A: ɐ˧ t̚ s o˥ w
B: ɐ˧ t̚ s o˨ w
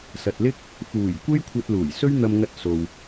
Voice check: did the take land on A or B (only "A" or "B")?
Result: B